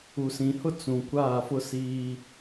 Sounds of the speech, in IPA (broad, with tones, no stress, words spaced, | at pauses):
u˨sĩ˨hʊ˦ t͡sũ˨kʷaː˦˨ fʊ˦siː˦